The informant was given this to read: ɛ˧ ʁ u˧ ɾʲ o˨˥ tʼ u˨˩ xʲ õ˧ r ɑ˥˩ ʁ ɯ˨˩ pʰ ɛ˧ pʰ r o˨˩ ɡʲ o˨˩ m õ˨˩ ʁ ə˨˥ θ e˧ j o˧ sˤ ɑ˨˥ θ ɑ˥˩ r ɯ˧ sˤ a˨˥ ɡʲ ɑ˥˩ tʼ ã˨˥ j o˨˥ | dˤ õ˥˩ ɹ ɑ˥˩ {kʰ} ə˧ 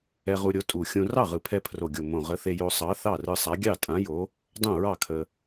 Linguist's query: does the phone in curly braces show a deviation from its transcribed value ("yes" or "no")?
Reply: no